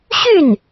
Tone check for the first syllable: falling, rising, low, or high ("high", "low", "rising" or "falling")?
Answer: falling